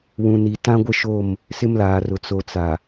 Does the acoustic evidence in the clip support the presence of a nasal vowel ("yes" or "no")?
yes